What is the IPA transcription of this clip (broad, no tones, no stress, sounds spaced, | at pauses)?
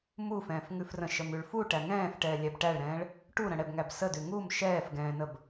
m u f ɛ̃ː f ŋ ʉ f r ə̃ ʃ ə m ʉ ɭ f u ʈ æ ŋ ɛ̃ː f ʈ ɛː lʲ æ b ʈ æ ɭ ɾ ɛ̃ː ɭ | ʈ u ɾ ə̃ ɽ ɛ b ŋ æ b s ə d ʉ ŋ u m ʃ ɛː f ɡ ɛ̃ː n ə b